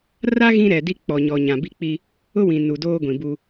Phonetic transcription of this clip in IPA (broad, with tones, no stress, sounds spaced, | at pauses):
r a˦ ɣ ĩ˦ ɾ ɛ˨ d i˦ k͡p ɔ˨ ɲ ɔ˨ ɲ ã˨ b i˦ k͡p i˦ | ʊ˦ w ĩ˨ n u˨ d oː˦ ɡʷ ĩ˨ b u˦